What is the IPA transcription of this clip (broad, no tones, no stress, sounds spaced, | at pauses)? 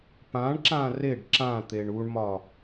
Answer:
p ã ɳ ǁ ã r e ɖ ǁ ã t̪ e ɳ u ɳ m ɒ